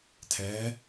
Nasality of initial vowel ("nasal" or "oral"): oral